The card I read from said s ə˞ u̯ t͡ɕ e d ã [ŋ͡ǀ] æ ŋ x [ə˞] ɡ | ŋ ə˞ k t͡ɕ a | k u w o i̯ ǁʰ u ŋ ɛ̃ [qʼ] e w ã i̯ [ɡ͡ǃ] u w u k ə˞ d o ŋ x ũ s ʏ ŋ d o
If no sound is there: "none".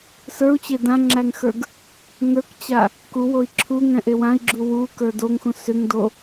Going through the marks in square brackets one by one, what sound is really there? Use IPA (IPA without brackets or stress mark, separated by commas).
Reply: ŋ͡ǁ, ə˞, ʔ, ɡ͡ǁ